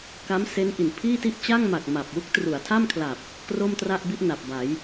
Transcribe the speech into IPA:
k a˦˥ m s e˦˥ n ʔ i˨˩ n pʰ iː˥˩ t i˥˩ ʔ t͡ɕ a˥˩ ŋ m a˨˩ k̚ m a˨˩ p̚ w u˦˥ k̚ t r u˩˦ a̯ tʰ a˥˩ m kʰ l a˨˩ p̚ | k r o˥˩ m t r a˥˩ ʔ b i˥˩ ʔ n a˨˩ p̚ b a˩˦ j

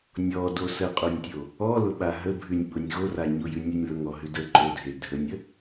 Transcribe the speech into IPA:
nʲ ɔ d o s ə qʼ o nʲ tʲ o | ɔ l ʊ ɓ a ɦ ə bʱ ʉ nʲ ɓ ʊ nʲ ɣ o r a ɲ ʊ j ʉ nʲ ʉ nʲ l ʊ ŋ ɔ ɦ ʉ d ə ǃ o dʱ e dʱ ə nʲ ə

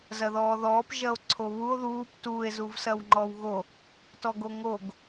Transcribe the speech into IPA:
z ɐ ð ɔː ð ɔː p ʒ ɐ o̯ ǀʰ o β u o̯ ð uː p t uː e̯ z u v s ɐ w ŋ͡ǃ ɔ w ɣ o | t ɔ ɡ o ŋ o ɡ

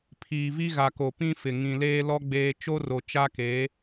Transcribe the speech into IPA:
pʰ iː˨ v i˦ ɣ a˨ k o˨ p ĩ˦ f ɪ˨ ŋ ĩ˨ l eː˦ l ɔ˦ ɡ͡b eː˦ t͡ʃ o˦ r o˨ t͡ʃ a˦ k eː˨˦

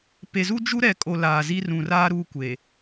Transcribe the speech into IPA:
p e˨ z u˦ d͡ʒ u˦ ɾ ɛ˨ kʼ o˨ l aː˨ z i˦ r ũ˨ r aː˦ ɾ uː˦ kʷ e˨

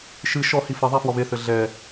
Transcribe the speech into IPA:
ʃ ɨ ʃ ɔ h i f ɐ ðˤ a f w ɔ β e θ ɘ ɮ ɛ

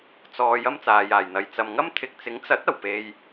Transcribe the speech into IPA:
t͡s ɔː˧ j ɐ˥ m t͡s aː˨ j aː˨˩ j n̪ ɐ˨˧ j t͡s ɐ˨ m ŋ ɐ˥ m t̪ʰ ɪ˨ k̚ t͡s ɪ˨˥ ŋ t͡s ɐ˨˥ t̚ ɐ˨˩ w p e˧ j

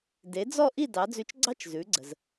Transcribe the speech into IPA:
d e˩˥ d͡z ɔ˥˩ ʔ i˥˩ d ɑ˩˥ d͡z ʉ˧ t͡ʃ ɡ͡ǀ ɑ˥ t͡ʃ z ʉ˩˥ ɡ͡ǀ ə˩ z

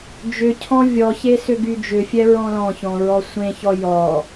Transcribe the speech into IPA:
d͡ʒ ʏ cʰ ɔ̃ vʲ ɔ ç e s ʏ ɡ y d͡ʒ ʏ fʲ ɛ ɹ ɔ̃ l ɔ̃ ç ɔ̃ ɹ ɔ sʷ ẽ ç ɔ j ɔ

